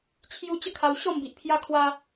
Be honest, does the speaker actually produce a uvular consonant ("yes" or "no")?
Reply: no